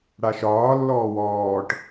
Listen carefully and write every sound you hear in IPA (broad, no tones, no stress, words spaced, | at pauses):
ɽaʃɒː lːɔːwɔːʈ